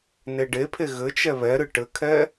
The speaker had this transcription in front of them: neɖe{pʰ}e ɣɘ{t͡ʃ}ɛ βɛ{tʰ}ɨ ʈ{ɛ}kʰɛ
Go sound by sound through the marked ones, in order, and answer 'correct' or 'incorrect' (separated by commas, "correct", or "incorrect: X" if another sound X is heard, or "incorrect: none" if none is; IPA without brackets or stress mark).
correct, correct, incorrect: ɾ, incorrect: ɘ